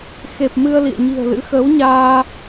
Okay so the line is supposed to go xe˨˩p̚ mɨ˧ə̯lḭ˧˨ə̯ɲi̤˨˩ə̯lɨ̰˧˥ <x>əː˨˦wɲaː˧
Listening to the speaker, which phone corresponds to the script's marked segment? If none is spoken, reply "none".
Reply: x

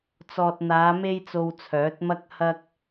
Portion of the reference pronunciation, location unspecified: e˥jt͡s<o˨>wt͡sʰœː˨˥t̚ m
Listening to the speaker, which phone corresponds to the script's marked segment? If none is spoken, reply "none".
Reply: o˧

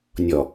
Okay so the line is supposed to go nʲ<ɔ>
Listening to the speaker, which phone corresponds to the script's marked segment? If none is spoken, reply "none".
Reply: ɔ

